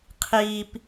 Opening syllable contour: low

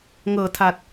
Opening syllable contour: low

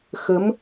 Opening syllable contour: rising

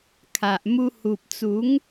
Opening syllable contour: low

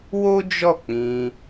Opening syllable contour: high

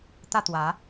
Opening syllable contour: falling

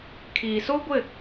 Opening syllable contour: low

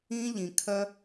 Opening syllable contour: high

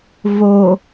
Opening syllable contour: low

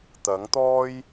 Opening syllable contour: rising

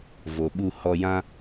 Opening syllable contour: low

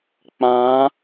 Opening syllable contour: rising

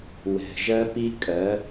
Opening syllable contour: low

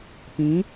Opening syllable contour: rising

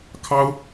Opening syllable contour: high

